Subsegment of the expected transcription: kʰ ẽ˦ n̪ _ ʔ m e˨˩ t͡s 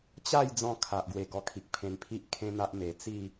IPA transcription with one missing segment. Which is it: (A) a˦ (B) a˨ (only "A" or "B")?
A